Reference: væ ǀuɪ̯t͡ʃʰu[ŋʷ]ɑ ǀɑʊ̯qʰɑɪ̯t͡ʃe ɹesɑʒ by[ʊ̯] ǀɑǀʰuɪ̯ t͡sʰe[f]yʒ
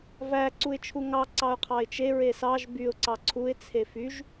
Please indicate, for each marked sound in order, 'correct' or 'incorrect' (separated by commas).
incorrect, correct, correct